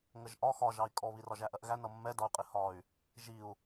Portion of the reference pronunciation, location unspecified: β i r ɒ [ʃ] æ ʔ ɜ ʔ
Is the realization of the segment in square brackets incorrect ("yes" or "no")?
yes